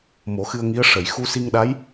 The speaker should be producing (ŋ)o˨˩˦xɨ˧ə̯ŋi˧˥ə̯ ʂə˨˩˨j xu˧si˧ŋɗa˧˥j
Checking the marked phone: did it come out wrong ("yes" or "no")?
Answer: yes